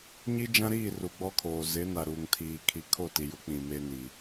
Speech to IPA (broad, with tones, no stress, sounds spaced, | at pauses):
ɲ i˦ d͡ʒ ã˦ ɾ iː˦˨ r u˨ ɡ͡b ɔ˦ kʰ oː˨ z ɪ˨˦ n a˨ ɾ uː˨ ŋ tʰ iː˨ kʰ i˨ kʰ o˦˨ t i˨ j ʊ˨˦ k͡p ĩ˨ m e˦ n i˨